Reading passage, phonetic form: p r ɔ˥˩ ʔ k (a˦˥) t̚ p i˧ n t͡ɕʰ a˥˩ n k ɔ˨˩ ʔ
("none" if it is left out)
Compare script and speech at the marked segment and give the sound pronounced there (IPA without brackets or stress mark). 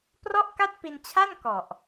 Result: a˥˩